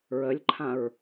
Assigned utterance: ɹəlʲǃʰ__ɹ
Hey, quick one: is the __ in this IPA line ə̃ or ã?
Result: ã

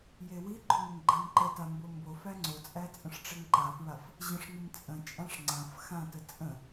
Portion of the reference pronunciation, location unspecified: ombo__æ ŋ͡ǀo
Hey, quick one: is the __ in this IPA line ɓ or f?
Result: f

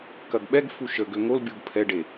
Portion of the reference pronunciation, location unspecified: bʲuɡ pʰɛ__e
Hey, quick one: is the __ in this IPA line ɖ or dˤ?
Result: ɖ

